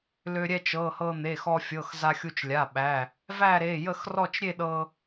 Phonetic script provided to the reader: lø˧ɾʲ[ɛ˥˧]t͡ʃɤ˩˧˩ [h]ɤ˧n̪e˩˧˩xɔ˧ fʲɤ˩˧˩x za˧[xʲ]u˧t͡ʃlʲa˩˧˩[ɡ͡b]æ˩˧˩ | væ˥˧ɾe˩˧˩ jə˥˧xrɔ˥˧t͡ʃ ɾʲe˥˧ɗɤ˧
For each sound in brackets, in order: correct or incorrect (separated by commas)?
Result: correct, correct, correct, incorrect